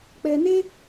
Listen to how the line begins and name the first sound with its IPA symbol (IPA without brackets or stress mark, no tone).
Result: k͡p